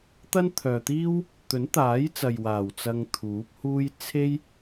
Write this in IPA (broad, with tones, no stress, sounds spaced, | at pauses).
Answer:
t̪ ɐ˥ n t̪ʰ œː˨ t̪ iː˥ w | t̪ ɵ˨˥ n t̪ aː˨˥ j t͡s ɐ˨ j w aː˨˩ w t͡s ɐ˧ ŋ t̪ʰ uː˨˥ p̚ h uː˥ j t͡sʰ e˥ j